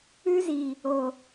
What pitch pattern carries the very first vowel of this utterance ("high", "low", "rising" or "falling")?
high